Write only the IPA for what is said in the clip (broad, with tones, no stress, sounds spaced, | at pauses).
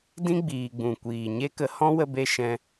d ĩ˦ ɡ͡b iː˧ ɡ͡b ũ˨ kʷ iː˨ ɲ e˦ k ə˧ h ɔ̃˦ w ə˧ b e˧ ʃ ɛ̃˧